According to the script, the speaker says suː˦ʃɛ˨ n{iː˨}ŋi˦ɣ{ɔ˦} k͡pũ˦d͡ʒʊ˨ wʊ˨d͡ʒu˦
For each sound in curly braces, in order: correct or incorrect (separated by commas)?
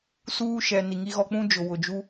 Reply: incorrect, correct